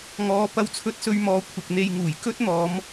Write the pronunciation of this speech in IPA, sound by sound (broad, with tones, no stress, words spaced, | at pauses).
ŋɔː˨˧ pɐ˧wt͡sʰɵ˧t̚sɵ˧ɥmɔː˨˧ kʷʰɪ˨k̚n̪e˧jŋuː˨˩j kɵ˥t̚n̪ɔː˨˧m